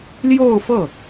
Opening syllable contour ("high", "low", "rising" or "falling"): falling